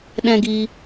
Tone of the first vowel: high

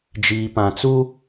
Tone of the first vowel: low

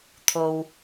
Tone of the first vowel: low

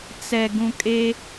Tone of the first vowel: low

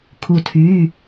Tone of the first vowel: falling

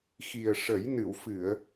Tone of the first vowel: low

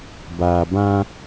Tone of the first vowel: low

